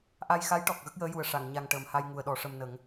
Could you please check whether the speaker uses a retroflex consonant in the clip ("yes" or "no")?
yes